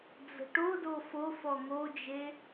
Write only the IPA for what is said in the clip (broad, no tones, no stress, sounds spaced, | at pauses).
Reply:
d͡z ə̤ ʈ o d o f o f ɔ ŋ o d͡ʒ e